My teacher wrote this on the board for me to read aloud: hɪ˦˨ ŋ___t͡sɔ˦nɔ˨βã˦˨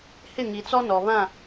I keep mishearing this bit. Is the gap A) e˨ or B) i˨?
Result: B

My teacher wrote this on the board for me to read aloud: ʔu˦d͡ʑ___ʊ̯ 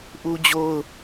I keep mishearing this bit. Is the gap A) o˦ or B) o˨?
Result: A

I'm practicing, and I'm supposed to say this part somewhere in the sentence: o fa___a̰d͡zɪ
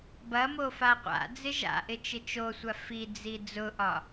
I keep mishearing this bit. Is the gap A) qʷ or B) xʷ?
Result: A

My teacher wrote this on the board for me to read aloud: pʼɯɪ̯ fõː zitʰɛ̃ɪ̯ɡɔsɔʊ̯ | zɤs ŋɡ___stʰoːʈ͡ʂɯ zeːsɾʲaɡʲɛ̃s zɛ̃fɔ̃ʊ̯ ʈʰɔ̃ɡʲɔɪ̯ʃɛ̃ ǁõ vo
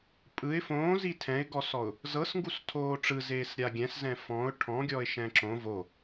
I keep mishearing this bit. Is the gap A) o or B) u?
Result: B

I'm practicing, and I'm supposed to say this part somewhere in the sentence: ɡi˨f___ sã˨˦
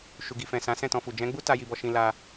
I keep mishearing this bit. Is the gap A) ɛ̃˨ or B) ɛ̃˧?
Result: A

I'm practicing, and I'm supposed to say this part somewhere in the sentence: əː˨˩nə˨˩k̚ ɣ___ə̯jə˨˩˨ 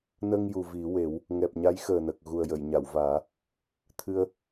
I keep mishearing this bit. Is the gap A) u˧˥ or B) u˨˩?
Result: B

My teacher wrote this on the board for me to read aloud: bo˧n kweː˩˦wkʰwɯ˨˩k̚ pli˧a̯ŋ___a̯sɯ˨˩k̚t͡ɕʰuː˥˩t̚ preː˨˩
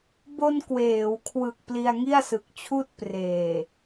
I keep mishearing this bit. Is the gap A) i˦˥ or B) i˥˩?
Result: B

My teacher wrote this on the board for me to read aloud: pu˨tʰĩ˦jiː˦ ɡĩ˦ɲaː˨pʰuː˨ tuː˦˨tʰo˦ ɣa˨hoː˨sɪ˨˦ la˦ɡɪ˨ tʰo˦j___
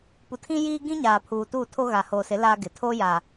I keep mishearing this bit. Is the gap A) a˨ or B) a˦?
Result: A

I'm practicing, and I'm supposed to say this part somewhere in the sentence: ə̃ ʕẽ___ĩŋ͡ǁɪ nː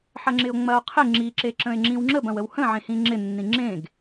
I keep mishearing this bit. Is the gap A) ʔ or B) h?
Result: B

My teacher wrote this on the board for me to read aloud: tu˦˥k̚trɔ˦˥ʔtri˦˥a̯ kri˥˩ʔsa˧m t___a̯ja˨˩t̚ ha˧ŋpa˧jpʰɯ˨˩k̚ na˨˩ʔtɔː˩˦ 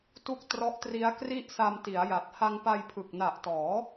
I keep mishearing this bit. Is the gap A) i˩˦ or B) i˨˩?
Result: A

